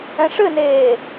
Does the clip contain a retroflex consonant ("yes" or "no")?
yes